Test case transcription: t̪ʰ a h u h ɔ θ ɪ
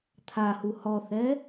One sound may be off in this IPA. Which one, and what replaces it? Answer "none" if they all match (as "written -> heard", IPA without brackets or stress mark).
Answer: ɪ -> ɛ